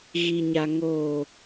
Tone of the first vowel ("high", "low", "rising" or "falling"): low